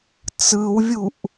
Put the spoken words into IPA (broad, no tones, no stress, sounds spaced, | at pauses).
t͡s ɯ w vʲ u ʔ